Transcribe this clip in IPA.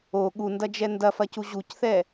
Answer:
o ɠundɐd͡ʒɛ ndɐfɐcu ʑucθɛ

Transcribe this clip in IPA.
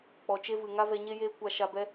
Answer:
k͡pɔ˨t͡ʃe˦vɨ˨ ŋa˦vɛ˧ɲe˦jeː˦ kʷa˧ʃa˧bɛ˦

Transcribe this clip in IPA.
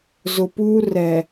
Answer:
zʊ˨puː˦ rɛ˨

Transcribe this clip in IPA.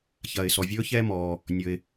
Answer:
çɐː˩ɪ̯sɔ˩ vʲɵː˥çɛː˥ mɔː˩ | nʲɵ˩ɪ̯

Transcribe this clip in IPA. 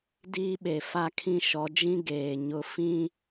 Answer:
diː˦ɓe˨ fa˦kʰĩ˦ ʃɔ˨˦d͡ʒĩ˦ ɡeː˨ ɲʊ˦ fĩ˦

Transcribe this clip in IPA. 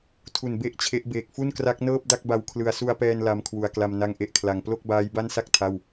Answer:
tʰu˨˩n be˥˩ʔt͡ɕʰe˦˥ʔ beː˨˩k̚fu˥˩n kra˦˥k̚nɤː˥˩p̚ da˥˩k̚ba˧wkʰlɯ˧a̯ su˧a̯pɛː˧n la˧mkʰwu˨˩a̯kla˧m na˥˩ŋʔe˥˩ʔkʰla˨˩ŋ plo˥˩k̚baː˦˥jba˥˩nsa˥˩k̚ tʰa˥˩w

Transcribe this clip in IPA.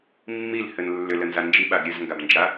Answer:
mːilhɘn lːʏlənza nd͡ʒiɓaɡ ɾʲɘzŋɡabnd͡ʒa

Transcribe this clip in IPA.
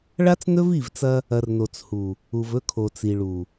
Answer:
ɭa˦t͡snɵ˦vi˦˨vt͡sɐ˦ | ɐ˨rno˨t͡shu˨ | u˨vɵ˦kʰo˨t͡si˨ ɭu˨

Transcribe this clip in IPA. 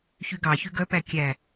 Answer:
çyɡɑçy ɡœpæ kʲæ

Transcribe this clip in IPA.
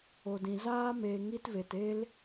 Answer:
o˨dĩ˨ zaː˦meː˨ ŋi˦tve˨t e˦l

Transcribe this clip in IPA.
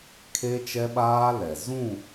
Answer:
kʰe˦t͡ʃɛ˦ɓaː˦ lɛ˨ zũ˦˨

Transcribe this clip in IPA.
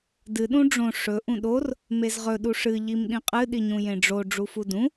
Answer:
dɨ ɗũɖ͡ʐõ ʂɵ ʔũɗor | mezʁɵ ɗuʂɨ ʎimɗĩqʼɨ ɗiɲũjẽɖ͡ʐo ɖ͡ʐufudũ

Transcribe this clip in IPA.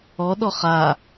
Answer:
ɔɗɔ χa

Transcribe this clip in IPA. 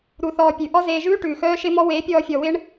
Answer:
ɾu˧θɔː˧pʲʉ˨ ʔɔ˦zeː˧ʒʉː˦ ʈʉː˨xœː˦ʃɪ˦mɔ˦ weː˨˦pʲɔː˧fʲɔ˨wɪ˦ɳ

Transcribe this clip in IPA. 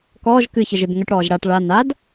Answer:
kɔːʒ kɨçəʒeb ŋəʈɽɔːʒ ɽaʈ ɭa nad

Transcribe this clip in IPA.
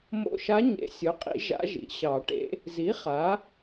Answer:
mo̰˧˩ʃa˧˥ɲḛ˨˩˦ sʲo˩˥qʼḭ˨˩˦ ʒa̰˧˥ʒḭ˩˥ɕɑ˨˩˦ʈḛ˧˥ | zi˩˥ χa˩˥

